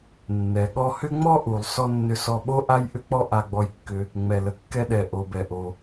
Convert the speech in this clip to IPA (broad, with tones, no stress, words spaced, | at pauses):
nːɛ˩ ɠɔ˧hʏ˥ ŋ͡mɔ˥ʔu˩lˠsɔ˧ nːʏ˧sɔ˧ɓo˥ ʔa˥jʔʏ˥k͡pɔ˥ ʔa˧ɡ͡bɔ˧jkːʏ˧ | ŋ͡mɛ˩lə˩kːɛ˧ɗɛ˩ ʔo˩bɛ˩ʔo˩